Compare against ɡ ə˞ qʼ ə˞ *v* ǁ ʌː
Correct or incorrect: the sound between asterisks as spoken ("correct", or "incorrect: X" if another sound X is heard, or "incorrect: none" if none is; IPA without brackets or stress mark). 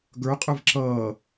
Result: correct